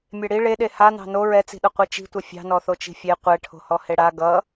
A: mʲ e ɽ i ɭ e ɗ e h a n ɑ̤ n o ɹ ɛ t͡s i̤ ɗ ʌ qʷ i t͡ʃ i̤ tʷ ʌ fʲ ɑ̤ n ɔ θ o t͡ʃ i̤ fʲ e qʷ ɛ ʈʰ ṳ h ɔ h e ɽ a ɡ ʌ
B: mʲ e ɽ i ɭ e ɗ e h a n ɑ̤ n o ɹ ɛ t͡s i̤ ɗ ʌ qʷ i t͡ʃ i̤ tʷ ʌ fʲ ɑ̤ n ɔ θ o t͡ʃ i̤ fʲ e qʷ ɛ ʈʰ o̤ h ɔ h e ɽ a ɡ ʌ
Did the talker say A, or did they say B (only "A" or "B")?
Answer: B